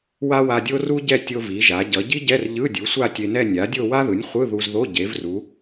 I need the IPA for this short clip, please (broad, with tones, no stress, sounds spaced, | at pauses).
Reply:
w a˥ w a˧ dʲ o˥ r u˥ ɟ ɛ˥˧ tʲ o˧ v i˩˧ ʒ a˩˧ ɟ ʌ˩˧ ɟ i˥ ɟ ɛ˧˥˧ r ʎ ɯ˧˥˧ dʲ u˩˥ sʷ a˥˧ tʲ e˧ n ɛ˥˧ nʲ a˩˥ dʲ o˥˧ w a˥ ð ɯ˩˥ nʲ χʷ ɯ˧˥˧ ð u˧ z ð o˧˥˧ ɟ e˩˧ v r u˩˧